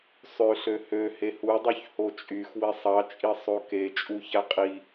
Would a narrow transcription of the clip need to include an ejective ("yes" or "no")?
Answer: yes